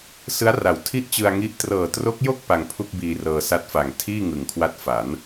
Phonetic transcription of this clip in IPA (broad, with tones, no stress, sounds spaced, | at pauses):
s ɯ˦˥ a̯ r a˨˩ w tʰ i˥˩ ʔ t͡ɕ ɯ˧ a̯ ŋ i˦˥ ʔ t r ɤː˨˩ t r o˦˥ k̚ j o˥˩ k̚ p a˧ ŋ pʰ u˥˩ k̚ b iː˧ r ɤː˧ s a˦˥ t̚ f a˨˩ ŋ tʰ iː˥˩ ŋ ɯ˨˩ ŋ kʰ w a˦˥ t̚ f a˩˦ n